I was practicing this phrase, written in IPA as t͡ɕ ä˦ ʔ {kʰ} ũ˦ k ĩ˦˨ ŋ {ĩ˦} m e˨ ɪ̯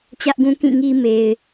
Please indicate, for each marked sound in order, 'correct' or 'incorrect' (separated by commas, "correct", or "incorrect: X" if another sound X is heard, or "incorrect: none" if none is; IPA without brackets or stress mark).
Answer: incorrect: ɡ, incorrect: i˦